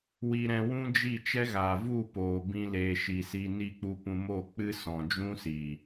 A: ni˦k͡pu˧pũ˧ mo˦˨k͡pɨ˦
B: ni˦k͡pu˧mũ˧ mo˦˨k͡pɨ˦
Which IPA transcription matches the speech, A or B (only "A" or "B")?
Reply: A